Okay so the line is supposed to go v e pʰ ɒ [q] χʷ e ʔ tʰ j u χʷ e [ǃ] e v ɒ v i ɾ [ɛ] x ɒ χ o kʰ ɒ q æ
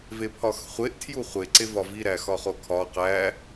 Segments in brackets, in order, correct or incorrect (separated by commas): incorrect, incorrect, incorrect